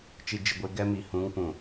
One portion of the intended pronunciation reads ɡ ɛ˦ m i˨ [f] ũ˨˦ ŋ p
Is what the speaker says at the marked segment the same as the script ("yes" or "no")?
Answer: no